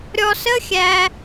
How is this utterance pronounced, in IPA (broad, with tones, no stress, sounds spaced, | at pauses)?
ɾʲ ɔ˧ s ə˦ xʲ æ˧